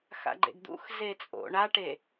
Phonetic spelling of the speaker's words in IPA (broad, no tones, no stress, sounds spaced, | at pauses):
x a̰ ɡ͡ǃ ḛ ɡ d̪ ṵ x z e t͡sʼ o̰ ɳ a ʈ e